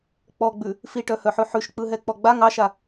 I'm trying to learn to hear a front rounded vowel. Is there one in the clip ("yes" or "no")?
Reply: yes